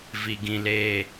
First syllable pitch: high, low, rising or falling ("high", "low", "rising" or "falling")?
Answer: low